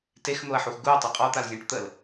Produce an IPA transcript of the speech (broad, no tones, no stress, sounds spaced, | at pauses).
t e x n̪ o ɐ̯ ħ u x ɡ u ɐ̯ tˤ u qʼ ɔ t̪ a l zʲ ẽ ʈ t̪ ə l